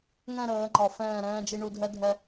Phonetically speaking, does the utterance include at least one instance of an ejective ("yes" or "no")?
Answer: no